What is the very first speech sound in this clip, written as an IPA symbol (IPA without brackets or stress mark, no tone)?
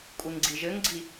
kʷʼ